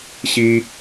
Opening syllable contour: high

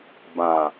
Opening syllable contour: low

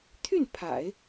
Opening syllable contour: falling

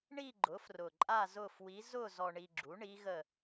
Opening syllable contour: falling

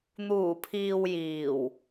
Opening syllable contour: low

